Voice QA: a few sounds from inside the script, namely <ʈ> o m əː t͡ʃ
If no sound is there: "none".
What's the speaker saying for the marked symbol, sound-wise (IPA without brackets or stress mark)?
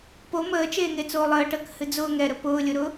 p